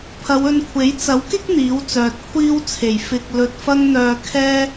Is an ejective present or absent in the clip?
absent